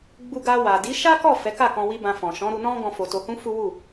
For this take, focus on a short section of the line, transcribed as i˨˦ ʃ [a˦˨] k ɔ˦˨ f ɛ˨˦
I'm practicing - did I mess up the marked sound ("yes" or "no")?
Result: yes